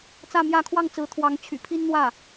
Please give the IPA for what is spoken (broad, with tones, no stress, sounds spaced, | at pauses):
t͡s ä˥˧ m j ä˥˧ kʰ w ɑ˥˩ ŋ t͡s ɹ̩˧˥ t̪ʰ w ɑ˧˥ ŋ t͡ɕʰ y̰˨˩ pʰ i˥ n n̪ w ä˥˩